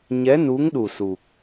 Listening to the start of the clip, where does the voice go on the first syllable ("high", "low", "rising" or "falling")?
rising